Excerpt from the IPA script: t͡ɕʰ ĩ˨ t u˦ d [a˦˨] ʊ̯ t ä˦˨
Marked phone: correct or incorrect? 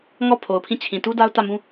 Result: incorrect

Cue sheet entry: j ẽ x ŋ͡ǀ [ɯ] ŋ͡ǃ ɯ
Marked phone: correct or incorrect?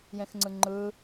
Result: correct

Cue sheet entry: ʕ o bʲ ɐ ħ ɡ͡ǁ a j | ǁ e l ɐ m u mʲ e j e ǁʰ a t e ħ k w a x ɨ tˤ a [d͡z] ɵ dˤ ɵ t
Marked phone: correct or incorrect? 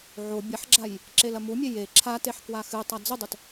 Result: correct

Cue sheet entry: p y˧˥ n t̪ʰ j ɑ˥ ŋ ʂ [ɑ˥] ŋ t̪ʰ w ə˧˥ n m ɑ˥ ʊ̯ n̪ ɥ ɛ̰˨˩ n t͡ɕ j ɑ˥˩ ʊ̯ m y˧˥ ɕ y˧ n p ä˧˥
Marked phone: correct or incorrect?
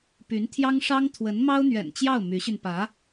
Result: correct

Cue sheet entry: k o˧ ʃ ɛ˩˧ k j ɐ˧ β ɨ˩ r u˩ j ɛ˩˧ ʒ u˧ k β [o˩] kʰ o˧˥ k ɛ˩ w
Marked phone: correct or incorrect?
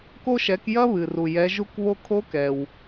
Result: incorrect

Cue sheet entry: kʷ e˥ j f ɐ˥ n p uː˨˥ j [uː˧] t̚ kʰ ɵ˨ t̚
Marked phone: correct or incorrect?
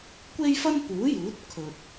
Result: incorrect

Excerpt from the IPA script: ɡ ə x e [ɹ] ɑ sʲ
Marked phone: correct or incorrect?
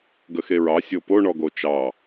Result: correct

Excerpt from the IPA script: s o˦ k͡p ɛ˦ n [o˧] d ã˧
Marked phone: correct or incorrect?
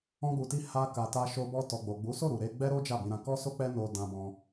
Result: correct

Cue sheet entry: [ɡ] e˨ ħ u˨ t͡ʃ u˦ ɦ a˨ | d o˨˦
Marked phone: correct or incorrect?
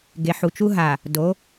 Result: correct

